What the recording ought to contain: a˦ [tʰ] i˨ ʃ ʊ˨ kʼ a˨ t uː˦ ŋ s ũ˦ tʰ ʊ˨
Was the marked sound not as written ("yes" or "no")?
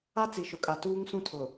yes